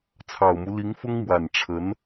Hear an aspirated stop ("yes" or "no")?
yes